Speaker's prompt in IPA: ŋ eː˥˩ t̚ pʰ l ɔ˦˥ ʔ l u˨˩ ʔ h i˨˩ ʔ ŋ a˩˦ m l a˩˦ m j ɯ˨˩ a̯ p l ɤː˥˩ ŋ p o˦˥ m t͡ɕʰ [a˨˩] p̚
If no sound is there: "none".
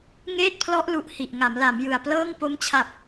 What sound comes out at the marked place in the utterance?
a˨˩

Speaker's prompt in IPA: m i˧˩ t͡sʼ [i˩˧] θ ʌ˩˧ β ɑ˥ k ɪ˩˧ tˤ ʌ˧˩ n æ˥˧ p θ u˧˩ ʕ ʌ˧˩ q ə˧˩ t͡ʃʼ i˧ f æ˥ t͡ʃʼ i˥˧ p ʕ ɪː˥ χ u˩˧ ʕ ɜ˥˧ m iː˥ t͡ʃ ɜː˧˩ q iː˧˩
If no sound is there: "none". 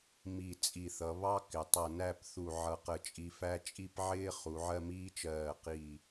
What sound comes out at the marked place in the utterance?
i˧˩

